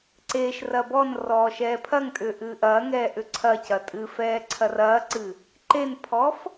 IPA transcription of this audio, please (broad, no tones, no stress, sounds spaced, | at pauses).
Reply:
ǀ eː ʃ r ɐ b ɔ n r ɔː ʃ ɛː pʰ ɐ ŋ tʼ ʏː ʔ ɨː ʔ ɐː ŋ ɛː ʔ ʏ ǀʰ ɐ c ɐ tʼ ɨ f ɛː ǀʰ ɐ r ɐː ǀ ɨ | ǃ e n pʰ ɔː f